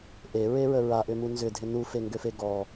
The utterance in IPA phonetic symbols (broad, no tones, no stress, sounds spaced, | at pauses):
ʔ e ɹ e ɹ ə ɹ a ʔ ʏ m u n z ʏ dʱ ɪ n u f e ŋ ɡ ø f e ɡ ɔ